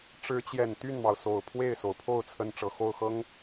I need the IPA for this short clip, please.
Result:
ʈ͡ʂ ɻ̩˧˥ t͡ɕ j ɛ˨˩ n t̪ y˥˩ n m ɑ˩ ʊ̯ s o˨˩ ʊ̯ pʰ w e˥˩ ɪ̯ s o˩ ʊ̯ pʰ o˥˩ ʊ̯ t͡sʰ ə˥ n ʈ͡ʂ ɤ˨˩ x o˥˩ ʊ̯ x ɤ˥ ŋ

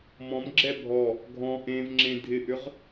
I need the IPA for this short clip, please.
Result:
m ɔ̃ m ɡ͡ǁ ɛ bʱ ɔ | ɡʱ ɔ̃ ʔ ẽ v ŋ͡ǁ ẽ dʱ ɪ ʔ ʏ ʁ

